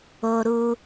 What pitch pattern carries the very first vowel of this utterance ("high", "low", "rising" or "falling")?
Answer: high